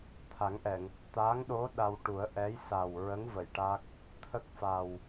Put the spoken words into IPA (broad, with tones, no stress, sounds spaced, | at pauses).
t̪ʰ a˨˩˦ ŋ ʔ ɛ˨˩˨ ŋ | t̪ aː˧˥ ŋ ɗ o˧˥ ɗ a˧ w ʈ u˨˩˦ ə̯ ʔ ɛ˧˥ j s a˨˩ w ɹ ə˧˥ ŋ v ə˨˩˨ j ʈ a˦˥ k̚ | t̪ʰ ə˦˥ k̚ f a˨˩ w